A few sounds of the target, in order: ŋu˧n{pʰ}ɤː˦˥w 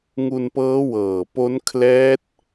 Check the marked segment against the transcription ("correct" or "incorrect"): incorrect